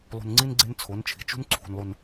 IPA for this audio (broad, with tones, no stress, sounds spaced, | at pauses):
lˠ ṳ˨ n ŋ͡ǀ i˦ n ɡ͡ǀ e˦ n t͡sʰ o˨˦ n t͡ʃʰ i̤˨ t͡ʃ ṳ˦ n ǀʰ ṳ˨ n lˠ u˨ n